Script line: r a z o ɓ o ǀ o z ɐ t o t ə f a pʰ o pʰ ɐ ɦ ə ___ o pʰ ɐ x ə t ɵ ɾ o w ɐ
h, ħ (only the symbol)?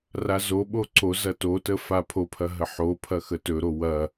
ħ